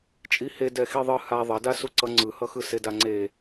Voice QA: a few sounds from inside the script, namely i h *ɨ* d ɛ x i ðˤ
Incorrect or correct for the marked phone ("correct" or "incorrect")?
incorrect